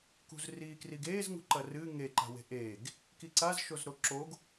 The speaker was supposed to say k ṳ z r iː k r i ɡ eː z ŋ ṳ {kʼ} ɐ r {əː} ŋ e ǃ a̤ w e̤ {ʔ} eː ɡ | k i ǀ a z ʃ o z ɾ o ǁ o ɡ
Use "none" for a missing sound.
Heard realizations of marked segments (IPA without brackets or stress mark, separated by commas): ǃ, ɨː, ʔ